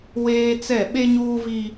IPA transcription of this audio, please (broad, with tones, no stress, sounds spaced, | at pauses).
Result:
w eː˦ t͡s ɛ˦˨ ɓ e˦ ɲ uː˦ v i˦